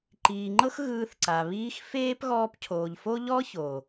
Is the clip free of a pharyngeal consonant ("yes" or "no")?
yes